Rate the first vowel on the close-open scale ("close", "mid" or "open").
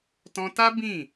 mid